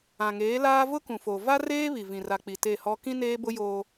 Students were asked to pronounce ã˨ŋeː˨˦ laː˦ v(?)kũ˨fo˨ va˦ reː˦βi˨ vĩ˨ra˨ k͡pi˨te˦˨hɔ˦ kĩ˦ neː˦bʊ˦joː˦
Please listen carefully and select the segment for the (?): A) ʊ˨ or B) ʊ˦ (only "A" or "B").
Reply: B